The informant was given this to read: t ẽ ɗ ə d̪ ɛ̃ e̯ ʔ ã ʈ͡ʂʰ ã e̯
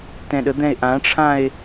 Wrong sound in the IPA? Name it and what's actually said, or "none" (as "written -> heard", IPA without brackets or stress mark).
ẽ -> ɛ̃